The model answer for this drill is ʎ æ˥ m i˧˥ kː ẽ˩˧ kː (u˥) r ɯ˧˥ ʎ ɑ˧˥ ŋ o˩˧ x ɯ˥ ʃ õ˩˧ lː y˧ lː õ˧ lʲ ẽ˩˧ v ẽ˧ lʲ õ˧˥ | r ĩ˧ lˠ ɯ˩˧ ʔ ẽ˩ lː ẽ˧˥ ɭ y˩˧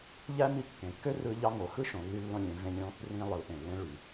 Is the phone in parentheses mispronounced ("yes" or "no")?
yes